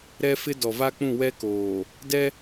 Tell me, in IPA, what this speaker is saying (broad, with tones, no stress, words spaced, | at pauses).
ɾɛ˦fɪ˦ dɔ˨va˦k͡pũ˦˨ wɛ˦ koː˨ | dɛ˦